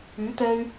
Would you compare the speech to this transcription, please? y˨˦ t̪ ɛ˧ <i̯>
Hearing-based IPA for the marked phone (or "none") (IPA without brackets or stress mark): y̯